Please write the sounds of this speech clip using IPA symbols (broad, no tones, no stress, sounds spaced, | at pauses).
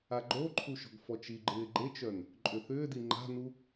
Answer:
a ɡ͡ǃ o ǃʰ u ʃ ɔ̤ ɡ f ɔ t͡ʃ i ɡ͡ǃ ɪː ɡ͡ǃ e t͡ʃ œ n | ǃʼ ʏ θ ʏː d i ŋ͡ǃ a̤ n u